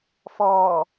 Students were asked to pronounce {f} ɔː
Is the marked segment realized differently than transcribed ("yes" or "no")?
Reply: no